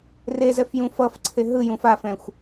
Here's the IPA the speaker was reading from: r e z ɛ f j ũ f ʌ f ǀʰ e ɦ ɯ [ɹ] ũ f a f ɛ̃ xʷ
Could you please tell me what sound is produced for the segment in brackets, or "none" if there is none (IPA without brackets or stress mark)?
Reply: j